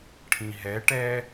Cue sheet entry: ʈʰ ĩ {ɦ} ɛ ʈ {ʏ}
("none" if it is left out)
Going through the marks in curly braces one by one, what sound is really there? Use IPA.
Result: ɦ, ɛ

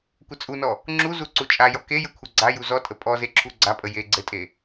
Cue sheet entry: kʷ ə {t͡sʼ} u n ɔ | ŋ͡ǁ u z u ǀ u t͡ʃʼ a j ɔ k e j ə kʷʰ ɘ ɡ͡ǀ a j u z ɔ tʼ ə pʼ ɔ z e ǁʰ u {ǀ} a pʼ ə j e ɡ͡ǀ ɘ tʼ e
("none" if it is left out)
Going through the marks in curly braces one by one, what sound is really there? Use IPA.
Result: t͡sʼ, ɡ͡ǀ

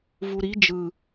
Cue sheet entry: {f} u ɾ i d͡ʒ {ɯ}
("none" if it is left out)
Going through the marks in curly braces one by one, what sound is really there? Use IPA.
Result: v, ɯ

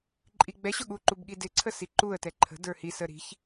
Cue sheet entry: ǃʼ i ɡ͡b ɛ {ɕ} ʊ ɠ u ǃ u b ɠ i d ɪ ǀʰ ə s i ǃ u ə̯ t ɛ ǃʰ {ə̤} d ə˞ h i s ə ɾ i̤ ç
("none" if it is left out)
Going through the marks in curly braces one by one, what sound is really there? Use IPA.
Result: ɕ, ə̤

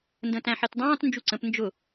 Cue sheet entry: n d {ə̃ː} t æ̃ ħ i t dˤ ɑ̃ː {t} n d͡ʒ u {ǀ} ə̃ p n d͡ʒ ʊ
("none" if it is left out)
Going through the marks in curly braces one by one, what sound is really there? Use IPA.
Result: ə̃ː, t, ǀ

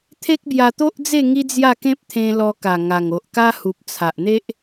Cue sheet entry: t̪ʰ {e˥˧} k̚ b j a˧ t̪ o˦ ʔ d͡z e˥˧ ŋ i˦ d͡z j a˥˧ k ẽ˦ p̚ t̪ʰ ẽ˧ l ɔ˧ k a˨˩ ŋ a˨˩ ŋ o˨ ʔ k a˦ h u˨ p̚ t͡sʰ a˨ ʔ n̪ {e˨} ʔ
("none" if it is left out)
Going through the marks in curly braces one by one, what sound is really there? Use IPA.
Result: e˦, e˦

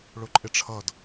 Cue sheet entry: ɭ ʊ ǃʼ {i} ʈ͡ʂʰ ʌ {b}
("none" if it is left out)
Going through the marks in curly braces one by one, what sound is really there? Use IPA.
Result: ɪ, d

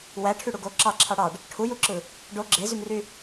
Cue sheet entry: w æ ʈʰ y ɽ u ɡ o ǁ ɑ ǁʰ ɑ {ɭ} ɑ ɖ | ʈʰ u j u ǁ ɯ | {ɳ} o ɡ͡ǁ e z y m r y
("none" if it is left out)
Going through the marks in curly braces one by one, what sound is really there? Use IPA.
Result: ɽ, ɖ

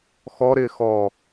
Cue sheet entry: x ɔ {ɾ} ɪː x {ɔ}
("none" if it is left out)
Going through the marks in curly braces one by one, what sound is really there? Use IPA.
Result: ɾ, ɔ

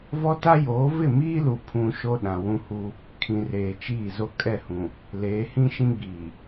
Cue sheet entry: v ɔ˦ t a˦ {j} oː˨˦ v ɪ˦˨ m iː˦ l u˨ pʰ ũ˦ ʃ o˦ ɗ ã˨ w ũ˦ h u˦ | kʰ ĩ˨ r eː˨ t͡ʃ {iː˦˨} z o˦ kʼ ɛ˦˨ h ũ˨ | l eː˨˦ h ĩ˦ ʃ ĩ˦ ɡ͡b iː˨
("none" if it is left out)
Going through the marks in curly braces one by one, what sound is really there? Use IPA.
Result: j, iː˦˨

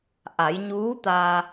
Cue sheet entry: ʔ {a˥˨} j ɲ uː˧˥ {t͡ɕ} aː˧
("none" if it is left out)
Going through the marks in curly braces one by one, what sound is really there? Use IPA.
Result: a˩˧, t̪

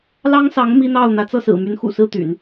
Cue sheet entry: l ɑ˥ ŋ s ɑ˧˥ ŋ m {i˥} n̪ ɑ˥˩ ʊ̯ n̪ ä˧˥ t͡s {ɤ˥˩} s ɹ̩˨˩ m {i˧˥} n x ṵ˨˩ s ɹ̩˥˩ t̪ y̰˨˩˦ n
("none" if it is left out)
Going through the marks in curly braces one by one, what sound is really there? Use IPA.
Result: i˥, ɤ˥˩, y˧˥

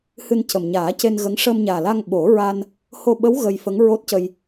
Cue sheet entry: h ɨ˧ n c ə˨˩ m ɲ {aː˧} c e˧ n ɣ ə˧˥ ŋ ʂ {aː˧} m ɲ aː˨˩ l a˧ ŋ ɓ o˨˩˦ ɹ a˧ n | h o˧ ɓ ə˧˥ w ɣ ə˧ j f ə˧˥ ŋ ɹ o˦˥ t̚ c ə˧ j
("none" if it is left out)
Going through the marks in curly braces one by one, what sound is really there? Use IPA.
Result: aː˨˩˦, əː˧

